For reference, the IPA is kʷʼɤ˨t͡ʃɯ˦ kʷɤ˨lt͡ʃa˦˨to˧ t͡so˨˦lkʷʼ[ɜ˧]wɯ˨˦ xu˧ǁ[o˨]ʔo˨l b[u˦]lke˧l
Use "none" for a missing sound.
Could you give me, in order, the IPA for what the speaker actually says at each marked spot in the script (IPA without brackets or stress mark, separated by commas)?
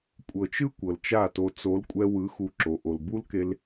ɛ˧, o˨, u˦